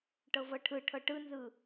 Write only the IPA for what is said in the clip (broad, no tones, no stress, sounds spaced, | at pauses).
ʈ ɤ v ɤ ʈʰ ɯ ʈʰ ɤ ʈ ɯ n z ɯ